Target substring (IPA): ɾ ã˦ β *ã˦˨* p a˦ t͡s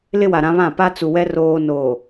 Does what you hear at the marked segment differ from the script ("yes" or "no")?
no